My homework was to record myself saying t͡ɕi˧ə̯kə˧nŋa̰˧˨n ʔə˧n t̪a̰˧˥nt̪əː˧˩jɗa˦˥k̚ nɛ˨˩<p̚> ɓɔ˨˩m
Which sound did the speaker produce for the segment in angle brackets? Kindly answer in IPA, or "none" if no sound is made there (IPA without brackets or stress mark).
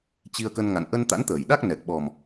k̚